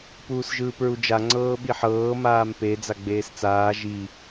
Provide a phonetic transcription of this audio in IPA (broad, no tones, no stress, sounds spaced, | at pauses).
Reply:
p uː s ʒ ɯː p ɹ u d͡ʒ a ŋ͡ǀ ɤː ɓ i ħ ɤː m aː m p e d͡z a ɡ͡b eː s t͡s aː ʒ i